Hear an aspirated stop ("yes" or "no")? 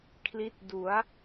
yes